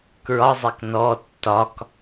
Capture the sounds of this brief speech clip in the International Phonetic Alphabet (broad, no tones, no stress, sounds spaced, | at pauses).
k ɹ ɒ zˤ e k n ɔ tː ɒ k